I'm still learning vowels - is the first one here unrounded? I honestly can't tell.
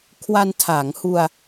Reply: yes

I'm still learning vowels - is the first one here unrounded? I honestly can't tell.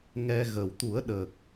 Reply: yes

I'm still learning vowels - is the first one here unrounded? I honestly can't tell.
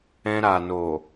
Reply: yes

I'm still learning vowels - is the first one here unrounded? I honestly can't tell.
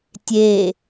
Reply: yes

